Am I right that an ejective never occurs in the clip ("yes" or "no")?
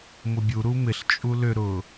no